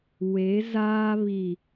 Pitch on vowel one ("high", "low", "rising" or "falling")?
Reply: rising